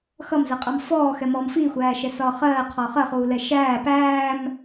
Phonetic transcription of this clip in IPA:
x ʌ m z ɜ qʼ ɑ m f ɔː x ɛ m ɔː m f i xʷ æː ʃ ɛ s ɒː χ ɜː qʰ ɔ χ ɜ χ uː l ɛ ʃ æː p æː m

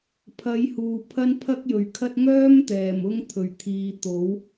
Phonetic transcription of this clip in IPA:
pʰ ɐ˨˧ j h uː˨ pʰ ɐ˥ n pʰ ɐ˥ k̚ j ɵ˨ ɥ kʰ ɐ˥ t̚ ŋ œː˥ m t̪ ɛː˨˩ m ʊ˧ ŋ t̪ʰ ɵ˨˩ ɥ t̪ʰ iː˨ t̪ o˨˥ w

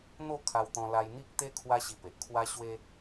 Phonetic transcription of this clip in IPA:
n̪ o˥˧ kʰ a˧ w t̪ ɔ̃˧ l a˧ j n̪ i˦ k̚ t̪ e˦ kʰ w a˦ ɕ i˧ p e˨ ʔ kʰ w a˦ ɕ w e˦

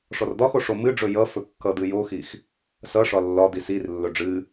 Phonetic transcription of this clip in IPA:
ʂ ɔ r d̪ ɒ x o ʂ o m ɨ ɖ͡ʐ ɵ j ʌ f ɵ kː ʌ d̪ ɨ j o x i x | s ʌ ʂ ɒ lː ɒ d̪ i s i r lː ɵ ɖ͡ʐ ɨ

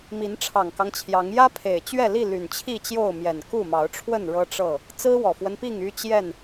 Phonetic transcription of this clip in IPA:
m i˨˦ n ʈ͡ʂʰ ɑ˨˩ ŋ k ɑ˦ ŋ t͡ɕʰ j ɑ˨˦ ŋ j ä˦ pʰ e˨˩ ɪ̯ t͡ɕ ɥ ɛ˥˨ l i˥˨ l y˨˩ n t͡ɕʰ i˥˨ t͡ɕ j o˥˨ ʊ̯ m j ɛ˨˩ n k u˥˨ m ɑ˨˦ ʊ̯ ʈ͡ʂʰ w ə˥˨ n ɻ ɤ˦ ʈ͡ʂ ɤ˥˨ | t͡s ɹ̩˦ w ɔ˨˩ f w ə˦ n p i˥˨ ŋ y˦ t͡ɕ j ɛ˥˨ n

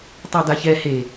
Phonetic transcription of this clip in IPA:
tˤ a d a ç ɛ h e

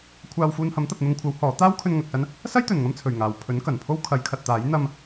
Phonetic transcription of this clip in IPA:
kʷʰ aː˧ w f uː˧ n h ɐ˨˥ m t̪ ɐ˨ p̚ n̪ ʊ˧ ŋ kʷʰ ɐ˨˥ w h ɔː˨˥ t̪ aː˥ w kʰ ɵ˧ n ŋ ɐ˨ k̚ s ɐ˥ n | s ɐ˥ j t̪ ɵ˨˩ n ŋ ɐ˧ m t͡sʰ ɵ˨˩ ɥ ŋ aː˨˩ w pʰ ɵ˨˥ n k ɐ˨˩ n pʰ o˥ w kʰ ɐ˨˧ j kʰ ɐ˨ t̚ t̪ aː˨˥ j n̪ ɐ˧ m

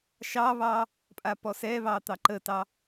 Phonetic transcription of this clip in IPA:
ʃ ɑ β ɑ | pʼ a p ɔ s ɛ β ɑ t̪ ɑ ǃ ə t ɑ

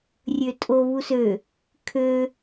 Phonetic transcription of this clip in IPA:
rʲ ø tʼ o β u s ø | kʰ ø

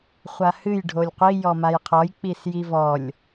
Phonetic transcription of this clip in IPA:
χʷ a h ɨ j ɖʱ o lʲ qʷ i j ɔ m a j qʰ ɔ j k͡p i s j i v ɔ lʲ

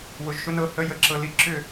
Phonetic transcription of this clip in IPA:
w ʊ˩˧˩ ʒ ʃ ʊ˧˥˧ n ɤ˩˧˩ h ə˧˥˧ j ə˨˦ ǁ ɤ˨˦ l i˧˩ ǁ ʏ˥˨

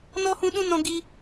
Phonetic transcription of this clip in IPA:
n ɔ˦ h ũ˦ ɗ ũ˦ n ɔ̃˦ ɡ i˦

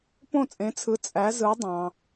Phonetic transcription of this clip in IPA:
p õ˥˨ t͡sʼ ẽ˨˥ t͡sʰ ɯ˨˥ t͡sʼ æ˨˥ z ɯ˨˥ dˤ ɑ̃˩

